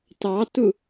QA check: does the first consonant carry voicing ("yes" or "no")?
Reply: no